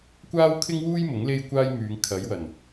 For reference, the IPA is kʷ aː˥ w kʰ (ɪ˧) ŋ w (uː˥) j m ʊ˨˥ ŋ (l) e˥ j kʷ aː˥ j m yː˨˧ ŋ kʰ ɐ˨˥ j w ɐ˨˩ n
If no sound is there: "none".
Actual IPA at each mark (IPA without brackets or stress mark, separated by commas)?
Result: ɪ˥, uː˥, l